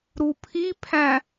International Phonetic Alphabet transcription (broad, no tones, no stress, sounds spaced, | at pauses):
ɾ u pʰ i pʰ æ̃